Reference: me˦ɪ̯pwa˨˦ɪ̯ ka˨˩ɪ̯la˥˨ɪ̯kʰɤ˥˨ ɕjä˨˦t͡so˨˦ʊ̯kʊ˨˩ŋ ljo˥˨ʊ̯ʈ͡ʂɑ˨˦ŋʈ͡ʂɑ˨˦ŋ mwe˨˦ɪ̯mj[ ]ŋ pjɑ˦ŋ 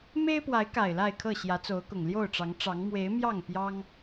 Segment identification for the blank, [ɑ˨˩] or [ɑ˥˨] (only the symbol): ɑ˥˨